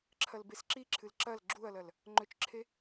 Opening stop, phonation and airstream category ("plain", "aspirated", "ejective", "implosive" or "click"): click